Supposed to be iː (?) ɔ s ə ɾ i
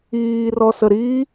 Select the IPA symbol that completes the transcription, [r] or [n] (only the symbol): r